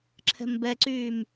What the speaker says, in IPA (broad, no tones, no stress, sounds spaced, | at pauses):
ǁʰ ɛ̤ m b ɛ ǀ yː m